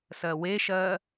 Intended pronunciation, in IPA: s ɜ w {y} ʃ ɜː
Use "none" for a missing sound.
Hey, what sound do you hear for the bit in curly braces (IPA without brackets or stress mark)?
e